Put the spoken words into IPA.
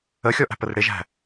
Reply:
ə xʲ ɔ ʔ æ̤ p ə r ɽ ɪ ʒ æ̤

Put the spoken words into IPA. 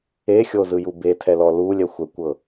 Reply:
e xʲ o z ɯ j u b e tʰ ɛ l ɔ l u lʲ ɛ xʷ ɛ kʷ ɤ

